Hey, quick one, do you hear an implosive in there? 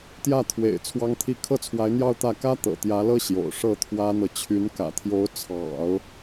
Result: no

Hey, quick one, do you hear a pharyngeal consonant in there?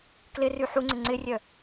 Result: yes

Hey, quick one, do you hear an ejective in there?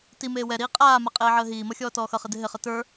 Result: yes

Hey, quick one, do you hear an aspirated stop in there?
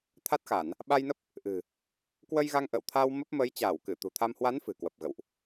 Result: yes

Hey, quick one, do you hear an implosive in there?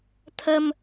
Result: no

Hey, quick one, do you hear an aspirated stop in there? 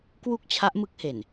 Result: yes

